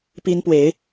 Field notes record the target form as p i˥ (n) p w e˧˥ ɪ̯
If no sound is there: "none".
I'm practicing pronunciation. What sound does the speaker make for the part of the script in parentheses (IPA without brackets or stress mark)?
n